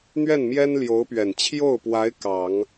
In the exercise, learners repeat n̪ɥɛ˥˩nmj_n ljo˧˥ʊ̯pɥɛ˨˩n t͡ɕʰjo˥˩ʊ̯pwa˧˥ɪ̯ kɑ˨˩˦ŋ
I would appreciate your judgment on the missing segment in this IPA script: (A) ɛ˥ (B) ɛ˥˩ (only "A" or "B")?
A